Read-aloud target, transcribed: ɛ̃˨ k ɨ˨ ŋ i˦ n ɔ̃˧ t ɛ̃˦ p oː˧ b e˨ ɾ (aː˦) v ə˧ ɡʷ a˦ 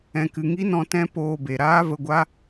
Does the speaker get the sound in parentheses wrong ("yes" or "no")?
no